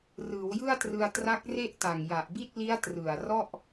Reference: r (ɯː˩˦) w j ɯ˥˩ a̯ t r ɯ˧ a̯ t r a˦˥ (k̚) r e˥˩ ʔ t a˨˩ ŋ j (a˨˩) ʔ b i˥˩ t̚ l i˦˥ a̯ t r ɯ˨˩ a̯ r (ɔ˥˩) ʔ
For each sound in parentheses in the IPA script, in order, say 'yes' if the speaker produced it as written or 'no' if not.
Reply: yes, yes, yes, yes

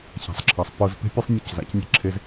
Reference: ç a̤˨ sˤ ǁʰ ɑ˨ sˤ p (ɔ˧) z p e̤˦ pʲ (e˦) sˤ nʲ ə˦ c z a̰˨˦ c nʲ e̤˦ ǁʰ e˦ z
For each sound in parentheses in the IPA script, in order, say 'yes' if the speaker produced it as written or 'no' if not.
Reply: no, yes

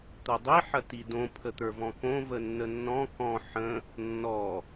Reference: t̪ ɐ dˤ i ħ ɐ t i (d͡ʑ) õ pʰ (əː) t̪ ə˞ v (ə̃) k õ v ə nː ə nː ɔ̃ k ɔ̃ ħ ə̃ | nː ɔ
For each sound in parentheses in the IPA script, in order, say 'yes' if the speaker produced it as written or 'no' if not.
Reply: no, no, no

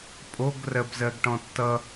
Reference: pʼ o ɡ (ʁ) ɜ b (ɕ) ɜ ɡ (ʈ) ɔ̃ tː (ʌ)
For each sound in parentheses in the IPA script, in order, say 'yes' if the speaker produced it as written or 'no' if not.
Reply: no, no, yes, yes

